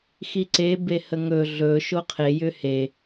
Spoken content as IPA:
x i ǀ e b e h ə ŋ ɵ ɮ ɵ ʃ o qʰ e j ʏ h e

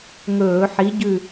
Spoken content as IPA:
ŋ ɵː˧˩˧ ħ i˨˥ ɟ ʉ˦˨

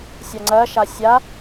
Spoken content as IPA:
sʲ a ŋ͡ǀ ɜ ʃ a sʲ a

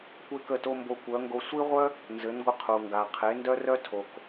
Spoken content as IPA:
kʷ e˦ k ə˦˨ t o˦ m b o˧ kʷ œ˨˦ ŋ ɡ o˧ sʷ i˦ ʁʷ œ˦ | n z ɘ˨˦ n ɡʷ ə˧ qʰ u˨ ŋ ɡ a˨ qʰ e˨˦ n d œ˧ r œ˧ tʰ o˨ k

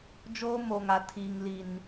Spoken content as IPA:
d͡ʒ oː˦ m oː˨ ŋ a˨ tʰ iː˨ ŋ l i˨ n

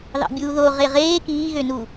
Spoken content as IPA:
ð ɑ̰ bʲ uː ð o ʁ e ʁ eː k iː ɣ ø n u

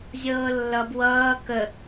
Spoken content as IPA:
zʲ ɤː lː ʌ b w ʌː k ə

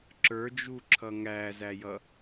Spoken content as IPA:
ǁ ə˞ d͡ʒ u ǁʰ ʌ ŋ æ z æ j ʌ

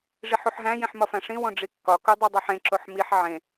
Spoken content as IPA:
ʐ i ħ u ħ ɦ æ̃ j ĩ ħ m ɒ f æ̃ ʂ ĩ w õ ɖ͡ʐ i kː ɒ k u dˤ e dˤ o ħ ẽ ǁ o ħ m i ħ ʕ ẽ

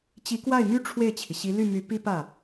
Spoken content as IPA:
t͡ɕ i˧˥ k w a˥˩ ɪ̯ m y˥ ʈ͡ʂʰ w e˥˩ ɪ̯ t͡ɕʰ i˩ ɕ i˧˥ l y˥˩ m y˧˥ p i˥ p ä˥˩

